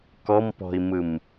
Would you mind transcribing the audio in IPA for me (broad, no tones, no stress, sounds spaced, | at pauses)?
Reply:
k ɔ m p ɔ̤ i̯ m ɯ m